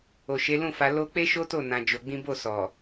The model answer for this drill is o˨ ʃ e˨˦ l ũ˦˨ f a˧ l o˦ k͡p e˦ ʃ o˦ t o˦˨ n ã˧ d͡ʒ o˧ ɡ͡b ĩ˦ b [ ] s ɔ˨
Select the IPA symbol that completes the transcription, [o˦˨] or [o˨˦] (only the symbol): o˦˨